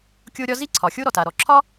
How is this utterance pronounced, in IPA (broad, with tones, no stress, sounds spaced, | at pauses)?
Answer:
kʲ o˥ ɾʲ ɒ˥ z i˥ ǀʰ ɒ˩ xʲ o˥ ɾ ɔ˩ t a˩ ɾ ɔ˩ ǁʰ ɒ˥